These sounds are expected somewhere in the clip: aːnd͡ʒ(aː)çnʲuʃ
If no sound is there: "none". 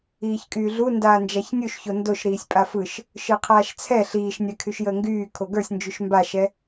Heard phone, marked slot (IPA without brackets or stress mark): a